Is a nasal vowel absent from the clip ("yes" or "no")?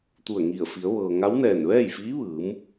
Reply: yes